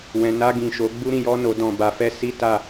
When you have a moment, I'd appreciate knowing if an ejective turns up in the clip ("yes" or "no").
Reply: no